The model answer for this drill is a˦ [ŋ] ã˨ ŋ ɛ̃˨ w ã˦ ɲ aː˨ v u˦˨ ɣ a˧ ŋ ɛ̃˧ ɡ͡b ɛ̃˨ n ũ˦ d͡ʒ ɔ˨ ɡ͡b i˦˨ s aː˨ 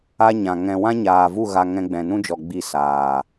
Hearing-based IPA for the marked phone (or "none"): ɲ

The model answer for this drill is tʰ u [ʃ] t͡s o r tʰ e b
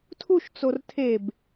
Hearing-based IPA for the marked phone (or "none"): ʃ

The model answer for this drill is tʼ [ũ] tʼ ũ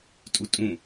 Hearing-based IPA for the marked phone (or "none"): u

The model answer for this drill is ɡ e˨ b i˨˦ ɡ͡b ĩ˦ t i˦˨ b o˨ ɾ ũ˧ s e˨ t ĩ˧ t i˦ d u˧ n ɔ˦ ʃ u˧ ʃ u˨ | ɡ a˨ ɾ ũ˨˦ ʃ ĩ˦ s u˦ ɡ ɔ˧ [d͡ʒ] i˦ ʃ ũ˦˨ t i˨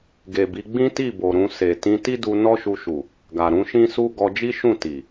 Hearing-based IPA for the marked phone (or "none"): d͡ʒ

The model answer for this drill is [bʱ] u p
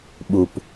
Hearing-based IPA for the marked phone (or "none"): ɓ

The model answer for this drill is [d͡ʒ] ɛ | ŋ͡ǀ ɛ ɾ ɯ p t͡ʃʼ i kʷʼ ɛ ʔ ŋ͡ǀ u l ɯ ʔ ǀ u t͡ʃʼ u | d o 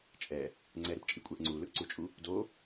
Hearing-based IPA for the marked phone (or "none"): t͡ʃʼ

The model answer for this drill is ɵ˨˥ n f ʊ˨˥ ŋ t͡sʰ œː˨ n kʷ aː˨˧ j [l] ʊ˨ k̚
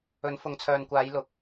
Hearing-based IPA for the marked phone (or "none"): l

